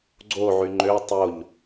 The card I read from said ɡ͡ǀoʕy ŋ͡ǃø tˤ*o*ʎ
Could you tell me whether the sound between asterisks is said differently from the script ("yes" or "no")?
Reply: no